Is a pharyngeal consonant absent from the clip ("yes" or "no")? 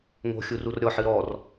no